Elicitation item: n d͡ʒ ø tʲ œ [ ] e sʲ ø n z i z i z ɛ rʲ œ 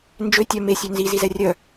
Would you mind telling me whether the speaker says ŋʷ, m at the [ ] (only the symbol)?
m